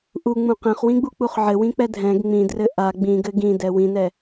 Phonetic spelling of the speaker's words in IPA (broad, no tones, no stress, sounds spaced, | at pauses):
ʔ u ŋ͡m ũ q ɛ̃ χ w ĩ ɡ͡b u k͡p u χ ʕ ɘ w ĩ k͡p ɛ dʱ ɛ̃ ɡ ŋ͡m ĩ d r ɘ ʔ a ɡ͡b ĩ ɡ ɘ ɡ ĩ d ɛ w ĩ n ɛ